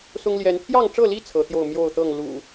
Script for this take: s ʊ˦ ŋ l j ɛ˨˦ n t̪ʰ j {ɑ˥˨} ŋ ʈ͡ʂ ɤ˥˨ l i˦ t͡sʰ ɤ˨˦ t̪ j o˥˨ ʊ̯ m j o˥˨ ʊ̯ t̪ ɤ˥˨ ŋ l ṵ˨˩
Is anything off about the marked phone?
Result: no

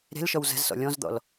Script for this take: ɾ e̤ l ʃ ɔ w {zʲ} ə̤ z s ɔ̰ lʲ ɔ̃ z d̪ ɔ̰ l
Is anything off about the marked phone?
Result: yes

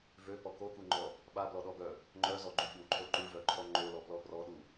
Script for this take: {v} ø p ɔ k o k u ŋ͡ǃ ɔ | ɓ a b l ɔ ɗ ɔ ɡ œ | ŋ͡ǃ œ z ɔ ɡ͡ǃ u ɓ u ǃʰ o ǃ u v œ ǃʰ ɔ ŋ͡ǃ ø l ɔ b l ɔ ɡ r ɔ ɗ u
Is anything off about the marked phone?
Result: no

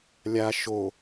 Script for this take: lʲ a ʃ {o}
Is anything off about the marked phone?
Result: no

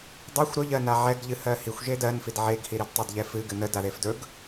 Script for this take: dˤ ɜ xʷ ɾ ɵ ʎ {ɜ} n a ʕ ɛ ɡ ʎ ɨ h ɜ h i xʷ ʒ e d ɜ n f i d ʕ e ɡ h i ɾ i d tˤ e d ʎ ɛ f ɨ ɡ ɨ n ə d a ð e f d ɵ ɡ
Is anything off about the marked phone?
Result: no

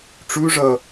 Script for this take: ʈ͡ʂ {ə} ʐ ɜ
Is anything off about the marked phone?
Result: yes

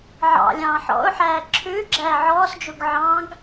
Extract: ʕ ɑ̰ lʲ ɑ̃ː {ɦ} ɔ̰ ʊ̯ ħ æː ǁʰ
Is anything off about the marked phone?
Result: yes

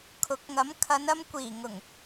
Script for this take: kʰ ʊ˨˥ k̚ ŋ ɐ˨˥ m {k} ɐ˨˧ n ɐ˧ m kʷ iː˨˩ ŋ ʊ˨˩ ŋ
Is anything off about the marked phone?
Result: yes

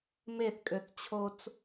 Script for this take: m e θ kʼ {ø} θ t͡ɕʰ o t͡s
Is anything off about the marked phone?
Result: no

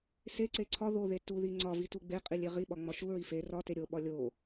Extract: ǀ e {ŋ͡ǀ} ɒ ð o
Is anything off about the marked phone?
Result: yes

